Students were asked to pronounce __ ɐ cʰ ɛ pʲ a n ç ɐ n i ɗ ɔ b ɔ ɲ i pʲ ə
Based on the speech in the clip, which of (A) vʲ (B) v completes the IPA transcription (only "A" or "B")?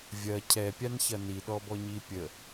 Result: A